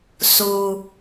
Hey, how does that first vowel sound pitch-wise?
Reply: low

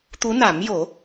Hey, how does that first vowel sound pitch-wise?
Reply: rising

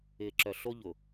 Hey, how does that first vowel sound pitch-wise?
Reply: low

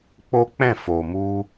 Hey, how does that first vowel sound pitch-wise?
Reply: high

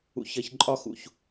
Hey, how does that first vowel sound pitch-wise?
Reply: low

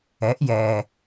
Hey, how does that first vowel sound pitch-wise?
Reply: rising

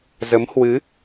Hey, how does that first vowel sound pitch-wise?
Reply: rising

